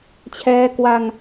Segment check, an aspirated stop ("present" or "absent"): present